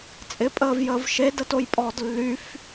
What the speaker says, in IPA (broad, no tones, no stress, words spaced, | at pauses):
t͡sʼɪpʼəːvjəːv ʃedətojpʼɔːd lːyf